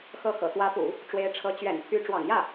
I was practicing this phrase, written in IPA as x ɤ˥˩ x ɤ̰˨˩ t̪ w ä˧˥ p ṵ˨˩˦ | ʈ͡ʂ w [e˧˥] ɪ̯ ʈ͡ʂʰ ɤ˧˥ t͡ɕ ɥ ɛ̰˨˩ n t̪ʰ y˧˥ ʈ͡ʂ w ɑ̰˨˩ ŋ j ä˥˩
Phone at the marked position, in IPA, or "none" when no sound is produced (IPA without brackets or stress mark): e˧˥